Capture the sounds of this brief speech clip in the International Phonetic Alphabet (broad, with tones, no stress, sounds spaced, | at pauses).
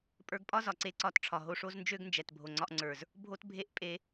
pʼ ə˞˧ ɡ pʼ ɒ˦ z ɒ˨ ǀ e˦ ǀ ɒ˦˨ t ʈ͡ʂʰ ɒ˨ ɦ o˧ ʂ o˦ z n d͡ʒ ø˦ ɡ n d͡ʒ ɛ˨ t bʱ o˨ ŋ͡ǀ ɒ˧ ʔ ŋ͡ǀ ə˞˨ z | bʱ o˦ t bʱ e˦ ʔ pʼ e˧